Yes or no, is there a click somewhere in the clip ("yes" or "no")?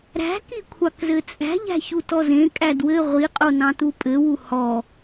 no